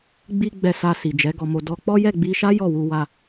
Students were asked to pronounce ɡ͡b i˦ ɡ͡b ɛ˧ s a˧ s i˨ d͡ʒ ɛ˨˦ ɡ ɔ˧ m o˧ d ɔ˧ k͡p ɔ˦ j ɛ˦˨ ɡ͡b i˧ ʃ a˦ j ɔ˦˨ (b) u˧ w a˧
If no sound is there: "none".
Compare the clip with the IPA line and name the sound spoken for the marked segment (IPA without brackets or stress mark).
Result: w